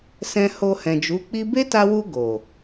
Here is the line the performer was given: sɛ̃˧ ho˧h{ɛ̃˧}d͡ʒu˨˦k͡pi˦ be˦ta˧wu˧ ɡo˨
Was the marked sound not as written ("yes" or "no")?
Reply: yes